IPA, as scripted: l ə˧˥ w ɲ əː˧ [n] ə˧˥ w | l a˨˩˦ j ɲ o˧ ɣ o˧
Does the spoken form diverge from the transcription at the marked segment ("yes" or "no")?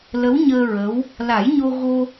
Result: yes